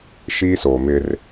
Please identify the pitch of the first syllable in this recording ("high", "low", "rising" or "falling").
high